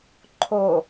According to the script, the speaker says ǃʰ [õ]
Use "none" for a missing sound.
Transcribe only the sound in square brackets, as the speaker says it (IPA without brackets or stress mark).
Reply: o